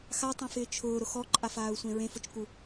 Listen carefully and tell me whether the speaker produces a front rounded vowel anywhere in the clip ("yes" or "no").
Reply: no